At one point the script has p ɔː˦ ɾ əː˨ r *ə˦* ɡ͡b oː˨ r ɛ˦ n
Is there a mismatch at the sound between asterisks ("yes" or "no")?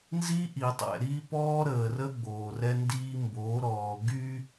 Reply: no